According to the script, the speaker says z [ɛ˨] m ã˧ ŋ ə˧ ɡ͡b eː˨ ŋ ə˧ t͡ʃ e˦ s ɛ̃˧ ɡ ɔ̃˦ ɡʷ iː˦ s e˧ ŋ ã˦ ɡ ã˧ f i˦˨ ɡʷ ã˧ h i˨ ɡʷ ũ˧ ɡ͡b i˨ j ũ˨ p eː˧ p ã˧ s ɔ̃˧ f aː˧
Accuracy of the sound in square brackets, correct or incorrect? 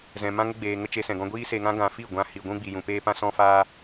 incorrect